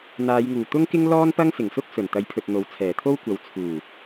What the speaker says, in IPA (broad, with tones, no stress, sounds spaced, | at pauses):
n̪ aː˨˧ j ŋ uː˨˩ t̪ ʊ˥ ŋ k ɪ˥ ŋ l ɔː˥ n p ɐ˥ ŋ s ɪ˨˩ ŋ s ʊ˥ k̚ s ɵ˨˩ n t̪ ɐ˨˥ j pʰ ɵ˨ t̚ n̪ o˨˥ w t͡sʰ ɛː˨˩ t̪ʰ o˥ w kʷ ɐ˨˧ w t͡sʰ uː˨˩